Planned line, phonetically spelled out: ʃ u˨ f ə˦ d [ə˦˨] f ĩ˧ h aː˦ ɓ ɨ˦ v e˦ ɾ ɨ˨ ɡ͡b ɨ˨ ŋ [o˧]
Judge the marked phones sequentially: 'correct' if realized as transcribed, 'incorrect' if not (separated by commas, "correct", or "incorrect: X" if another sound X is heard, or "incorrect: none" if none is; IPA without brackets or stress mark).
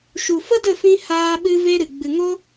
correct, incorrect: o˦